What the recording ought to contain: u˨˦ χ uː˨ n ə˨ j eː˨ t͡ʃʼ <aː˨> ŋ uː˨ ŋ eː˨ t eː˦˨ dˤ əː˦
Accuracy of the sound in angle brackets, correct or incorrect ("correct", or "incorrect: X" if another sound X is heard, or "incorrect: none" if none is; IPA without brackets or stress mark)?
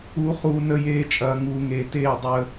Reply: incorrect: ɐː˨